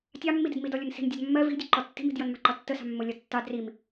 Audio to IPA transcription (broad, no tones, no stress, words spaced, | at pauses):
tʲɑmːidɪd midɔlʲʊnsi̤n dʲɒdmːɜ vi̤dʲə ǃɔtːi̤mi̤d jʌnmɑ̤ǃɒtːə sɑ̤mːʊ lʲɒdtːɑ drim